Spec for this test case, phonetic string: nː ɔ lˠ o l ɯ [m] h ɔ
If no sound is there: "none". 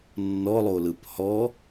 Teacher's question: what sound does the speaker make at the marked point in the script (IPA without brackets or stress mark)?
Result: p